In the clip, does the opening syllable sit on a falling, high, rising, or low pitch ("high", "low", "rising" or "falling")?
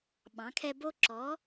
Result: rising